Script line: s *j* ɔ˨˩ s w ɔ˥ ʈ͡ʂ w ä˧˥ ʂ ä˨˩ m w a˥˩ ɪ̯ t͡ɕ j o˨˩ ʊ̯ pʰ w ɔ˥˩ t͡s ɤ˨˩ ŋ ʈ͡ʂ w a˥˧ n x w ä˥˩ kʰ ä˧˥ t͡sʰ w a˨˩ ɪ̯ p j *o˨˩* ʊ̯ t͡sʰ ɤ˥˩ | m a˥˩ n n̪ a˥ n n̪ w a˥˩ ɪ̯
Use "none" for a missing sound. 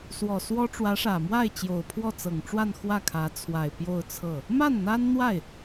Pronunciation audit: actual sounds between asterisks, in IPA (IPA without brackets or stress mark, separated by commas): w, o˥˧